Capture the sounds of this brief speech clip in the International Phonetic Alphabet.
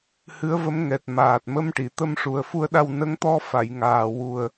hɨ˧˥ə̯və˧˥m ŋɛ˨˩t̚maː˨˩t̚mə˧mʈi˨˩˨ t̪ə˧mʂu˨˩ə̯fu˧ə̯ɗa˧w nə˧˥ŋt̪ɔ˧fa˨˩˨j ŋaː˨˩wu˨˩ə̯

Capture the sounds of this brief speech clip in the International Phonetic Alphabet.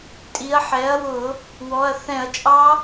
tʼi˩˥ɐ̯ ħɛ˩˥ɐ̯wʊ˧˩˧ | wɔ˩˧˩ɐ̯θɛ̃˧˩˧ɐ̯t͡ʃʼɑ˦˥

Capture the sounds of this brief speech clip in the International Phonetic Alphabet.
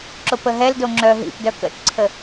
ǁopəɦɛldo ŋ͡ǁœɦḭpdœ kə̰tǀʰə

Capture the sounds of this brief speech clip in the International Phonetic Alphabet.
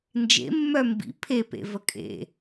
nd͡ʒḛmːœ mbḭ pʰepḛvə kʼḛ

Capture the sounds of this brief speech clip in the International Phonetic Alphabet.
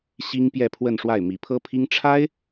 ɕi˥ŋ pjɛ˥˧pʰwə˥˧nʂwa˥˩ɪ̯ mi˨˩pʰɤ˥pʰi˥ŋ ʈ͡ʂʰa˥ɪ̯

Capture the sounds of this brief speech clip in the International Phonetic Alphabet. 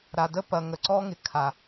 ɾa˨ də˦pɐ˨ŋə˨ǀɔ˦ ŋɪ˨kʰa˨

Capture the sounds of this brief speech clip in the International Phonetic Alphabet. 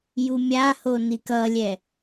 jumʲaho nikʌlʲɛ

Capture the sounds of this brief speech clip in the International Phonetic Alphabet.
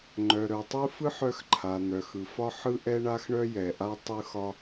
ŋ͡ǃœ˩ ɾœ˩tˤɯ˥fɯ˥ħ œ˥xǃʰa˩ n̪œ˩xɯ˩fɒ˥ ħɯ˥ʔɛ˥ɳa˥xɳœ˥ jɛ˩ʔa˥ tˤɯ˥xɒ˥

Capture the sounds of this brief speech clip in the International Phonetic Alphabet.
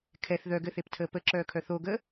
kʰɛθ ðœɡɘθeptʰəː pəǁœːkʰœ θoɡə

